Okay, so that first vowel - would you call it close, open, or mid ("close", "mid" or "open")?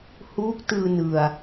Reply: close